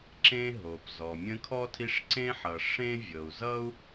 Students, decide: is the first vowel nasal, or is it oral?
nasal